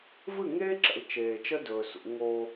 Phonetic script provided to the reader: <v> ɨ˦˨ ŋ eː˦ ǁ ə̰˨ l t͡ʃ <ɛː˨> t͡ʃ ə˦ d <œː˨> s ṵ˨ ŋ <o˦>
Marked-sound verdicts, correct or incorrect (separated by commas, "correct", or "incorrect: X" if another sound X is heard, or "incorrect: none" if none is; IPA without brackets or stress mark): correct, incorrect: eː˨, incorrect: ɵː˨, correct